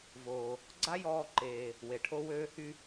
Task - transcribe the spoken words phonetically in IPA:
v oː˩ | ɡ͡ǀ a˥ j ɔː˧ ǃ eː˩ | w e˩ ʈʰ o˧ w øː˧ h y˧

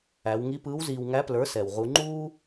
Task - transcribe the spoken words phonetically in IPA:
æ˩˧ w ŋ i˧˥ p ɯː˧˥ w z iː˧ w ŋ æ˧˥ p l ə˞˩˧ s ɛ˩ w ʁ u˩˧ ŋ͡ǃ uː˥

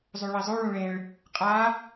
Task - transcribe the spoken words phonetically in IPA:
zˤ u ɭ i zˤ u ɭ ũ ɭ ẽ ɭ | qʼ a

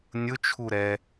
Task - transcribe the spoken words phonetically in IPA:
nʲ ʊ t͡ʃʰ u ɾ ɛ

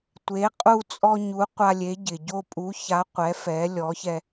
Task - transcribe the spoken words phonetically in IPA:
tʷ e˩˥ qʼ u˧ t͡sʼ ɔ˧ ɲ u˩˥ qʷ a˧ lʲ e˩˥ ɟ ɪ˩ ɟ o˧ pʼ u˩˥ ç a˩˥ qʷ ɛ˩˥ f ɛ˩˥ lʲ ɔ˩˥ ç ɛ˧

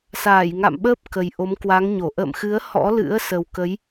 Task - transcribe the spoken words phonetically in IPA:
s aː˧˩ j ŋ a̰˧˨ m ɓ əː˦˥ p̚ k ə˨˩ j ʔ o˨˦ m k w a˨˦ ŋ ɲ o˧˩ ʔ ə̰ː˧˨ m x ɨ˨˦ ə̯ h ɔ̰˧˥ l ɨ̰˧˥ ə̯ s ə˨˩ w k ə˨˦ j

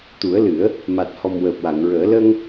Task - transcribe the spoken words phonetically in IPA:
t̪ u˨˩˦ ə̯ l ɨ˨˩˦ ə̯ | m a˨˩ t̚ h ɔ˨˩ m w əː˨˩ p̚ w a˨˩˨ ŋ ɹ əː˨˩˦ l ə˧ ŋ

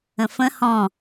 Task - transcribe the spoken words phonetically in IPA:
ə̃ f ə̃ h ɔ̃

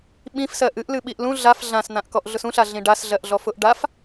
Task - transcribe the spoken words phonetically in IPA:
ɓ ĩ f s ɜ ʔ ɨ ʔ l ɨ ɓ i ʔ l ũ ɮ a f ɮ ã s n̪ ã ʔ k ɔ ʔ ɮ ʊ s ũ ɬ a ɮ ĩ ɖ a s ɮ ɜ ʔ ɮ ɔ f ʊ ʔ ɖ a f

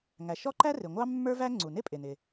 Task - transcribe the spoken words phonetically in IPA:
ŋ æ˩ ʃ ɔ˥ ǃ æ˥ r ɪ˩ ŋʷ ɑ˥ mː ə˞˥ v æ˥ ŋ͡ǀ u˩ n ɪ˥ pʼ ɪ˩ n ɪ˩

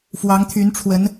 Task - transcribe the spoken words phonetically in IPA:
f w ɑ˧˥ ŋ t̪ʰ y˧˥ n ʈ͡ʂʰ w ə˧˥ n

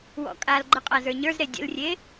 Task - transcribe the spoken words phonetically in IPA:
w ɔ̰ kʼ a l ɡ͡ǃ ə qʼ a z ə˞ ɲ ə˞ z ɾ e dʲ ə̰ l rʲ e

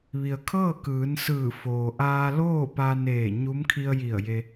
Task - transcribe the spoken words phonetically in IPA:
ʋ i˩ ə̯ kʰ ɤː˥˨ k ɯː˩˧ n s ɯː˧˩ f oː˩ ʔ aː˧ l oː˥˨ p a˧ n eː˧˩ ɲ u˧˥ m kʰ i˧ ə̯ j i˧˩ ə̯ j e˧

